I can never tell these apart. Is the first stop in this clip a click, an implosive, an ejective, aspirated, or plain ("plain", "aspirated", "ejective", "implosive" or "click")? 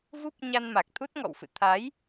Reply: plain